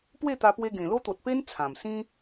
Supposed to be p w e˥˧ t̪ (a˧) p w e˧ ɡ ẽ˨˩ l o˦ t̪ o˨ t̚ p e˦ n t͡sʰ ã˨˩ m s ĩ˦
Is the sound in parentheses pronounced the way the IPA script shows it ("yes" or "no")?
yes